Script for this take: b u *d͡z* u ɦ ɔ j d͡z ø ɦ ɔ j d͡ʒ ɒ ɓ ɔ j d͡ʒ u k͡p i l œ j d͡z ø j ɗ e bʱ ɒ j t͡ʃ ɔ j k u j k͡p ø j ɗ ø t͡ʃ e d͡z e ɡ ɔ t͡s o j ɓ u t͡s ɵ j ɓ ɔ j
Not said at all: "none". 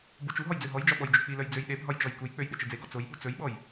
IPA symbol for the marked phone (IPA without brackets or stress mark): t͡ʃ